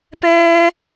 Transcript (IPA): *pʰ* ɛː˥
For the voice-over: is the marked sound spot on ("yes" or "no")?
no